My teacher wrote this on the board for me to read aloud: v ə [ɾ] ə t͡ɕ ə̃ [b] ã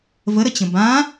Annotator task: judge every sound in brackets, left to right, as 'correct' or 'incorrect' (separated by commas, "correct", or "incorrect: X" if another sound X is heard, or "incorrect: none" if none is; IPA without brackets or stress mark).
correct, correct